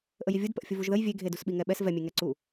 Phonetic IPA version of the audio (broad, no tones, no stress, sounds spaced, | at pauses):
ʔ ə j i vʲ u d p ə ʔ fʲ ə v u ʒ ð ə j vʲ e ɡʱ e d u s ɓ i ŋ ɛ ɓ ɛ s v ɛ mʲ e ŋ ɛ ǀ u